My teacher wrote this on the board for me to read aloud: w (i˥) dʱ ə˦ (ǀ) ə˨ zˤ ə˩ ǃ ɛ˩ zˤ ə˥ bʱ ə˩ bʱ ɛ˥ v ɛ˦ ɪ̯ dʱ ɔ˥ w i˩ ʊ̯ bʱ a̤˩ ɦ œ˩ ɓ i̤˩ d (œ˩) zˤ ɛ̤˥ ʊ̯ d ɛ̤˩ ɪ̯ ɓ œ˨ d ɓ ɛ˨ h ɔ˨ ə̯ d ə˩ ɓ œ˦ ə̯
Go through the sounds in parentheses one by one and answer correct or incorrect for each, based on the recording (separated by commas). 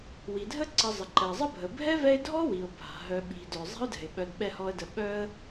incorrect, correct, correct